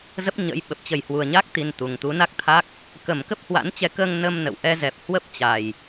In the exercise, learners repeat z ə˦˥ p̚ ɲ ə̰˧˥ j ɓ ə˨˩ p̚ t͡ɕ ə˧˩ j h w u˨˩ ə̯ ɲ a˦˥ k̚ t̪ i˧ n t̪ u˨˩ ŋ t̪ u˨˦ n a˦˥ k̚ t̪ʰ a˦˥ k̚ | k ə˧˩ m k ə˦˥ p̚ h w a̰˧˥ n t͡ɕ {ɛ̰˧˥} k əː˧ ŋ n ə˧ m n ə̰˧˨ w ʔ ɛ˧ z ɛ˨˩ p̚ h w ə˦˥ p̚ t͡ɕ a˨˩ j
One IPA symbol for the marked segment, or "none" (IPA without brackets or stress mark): ɛ˨˦